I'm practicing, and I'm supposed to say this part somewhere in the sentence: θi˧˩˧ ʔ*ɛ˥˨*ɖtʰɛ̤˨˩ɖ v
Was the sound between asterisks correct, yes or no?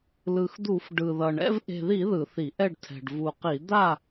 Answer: yes